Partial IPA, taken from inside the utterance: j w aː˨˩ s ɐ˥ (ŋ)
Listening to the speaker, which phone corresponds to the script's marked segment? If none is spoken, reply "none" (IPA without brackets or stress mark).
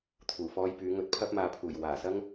ŋ